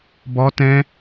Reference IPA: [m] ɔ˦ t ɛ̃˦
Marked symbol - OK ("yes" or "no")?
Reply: no